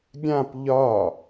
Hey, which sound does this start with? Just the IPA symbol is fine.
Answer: ɡʲ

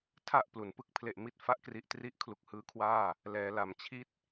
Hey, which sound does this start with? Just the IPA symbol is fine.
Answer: tʰ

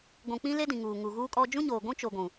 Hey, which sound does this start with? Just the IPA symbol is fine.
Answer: ɡʷ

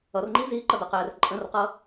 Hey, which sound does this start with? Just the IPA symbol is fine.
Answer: ʌ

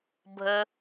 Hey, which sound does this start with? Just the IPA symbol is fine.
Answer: bʱ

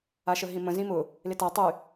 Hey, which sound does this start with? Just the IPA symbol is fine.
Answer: a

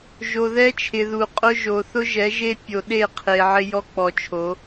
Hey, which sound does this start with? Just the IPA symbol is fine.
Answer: ʒ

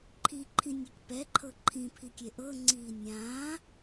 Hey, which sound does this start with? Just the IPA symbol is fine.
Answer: ǃʰ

